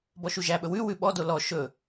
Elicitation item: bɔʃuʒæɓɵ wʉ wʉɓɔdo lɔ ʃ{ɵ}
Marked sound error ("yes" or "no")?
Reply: no